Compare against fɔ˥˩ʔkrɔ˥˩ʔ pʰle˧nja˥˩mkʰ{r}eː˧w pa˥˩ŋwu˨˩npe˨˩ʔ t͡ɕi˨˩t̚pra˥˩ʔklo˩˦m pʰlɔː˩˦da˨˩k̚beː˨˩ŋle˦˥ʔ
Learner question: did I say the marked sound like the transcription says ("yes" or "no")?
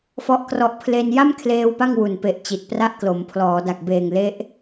no